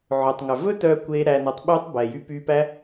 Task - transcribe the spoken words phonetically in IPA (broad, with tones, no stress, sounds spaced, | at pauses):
ʕ ø˨ tˤ ŋ œ˨ v ɵ˦ t œː˧ kʷ eː˧ ɾ æ˧ n œ˧ tˤ ɓ yː˧ tˤ b ɛː˨ j y˧ p yː˧ p æ˦